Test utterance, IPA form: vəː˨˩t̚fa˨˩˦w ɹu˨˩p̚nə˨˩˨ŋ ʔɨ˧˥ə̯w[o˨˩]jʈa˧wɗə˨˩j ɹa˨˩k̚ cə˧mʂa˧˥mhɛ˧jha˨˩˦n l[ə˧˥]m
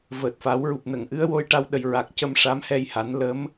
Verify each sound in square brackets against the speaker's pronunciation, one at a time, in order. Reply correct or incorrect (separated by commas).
incorrect, correct